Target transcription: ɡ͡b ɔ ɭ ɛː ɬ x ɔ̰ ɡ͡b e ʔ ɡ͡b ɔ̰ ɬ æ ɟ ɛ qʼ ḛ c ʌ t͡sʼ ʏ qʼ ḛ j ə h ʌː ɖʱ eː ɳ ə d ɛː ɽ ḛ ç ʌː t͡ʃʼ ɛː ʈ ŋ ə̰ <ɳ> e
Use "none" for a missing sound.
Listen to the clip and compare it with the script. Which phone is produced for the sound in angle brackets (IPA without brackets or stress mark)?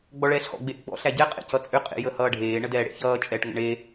ɳ